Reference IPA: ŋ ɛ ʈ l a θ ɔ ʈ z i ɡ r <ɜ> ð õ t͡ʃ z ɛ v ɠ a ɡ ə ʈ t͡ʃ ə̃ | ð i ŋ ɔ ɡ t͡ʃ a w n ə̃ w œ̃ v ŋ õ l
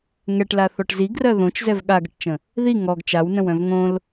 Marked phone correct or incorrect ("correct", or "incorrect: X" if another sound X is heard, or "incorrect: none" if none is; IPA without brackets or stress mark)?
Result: correct